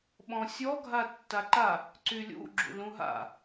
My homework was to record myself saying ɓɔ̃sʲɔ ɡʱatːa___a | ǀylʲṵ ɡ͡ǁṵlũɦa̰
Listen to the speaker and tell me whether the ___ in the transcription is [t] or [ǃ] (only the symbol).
ǃ